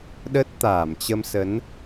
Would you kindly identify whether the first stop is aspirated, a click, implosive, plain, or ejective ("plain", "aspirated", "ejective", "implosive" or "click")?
implosive